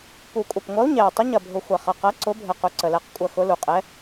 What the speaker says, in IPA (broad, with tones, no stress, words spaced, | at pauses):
pu˨˩kʷʼɐ˨˩pŋʷɐ˨˥u̯ ɲɛ˨˩u̯ tˤə˨˥ɲɐ˨˩bʱʊ˨˩ xʷɐ˨˩χɐ˨˩ qɐ˨˥ǀʊ˨˥bʱə˨˩ qʊ˨˥ǀə˨˩lɛ˨˥q kʷʼɐ˨˩ xʊ˨˥lu˨˩qʼɛ˨˥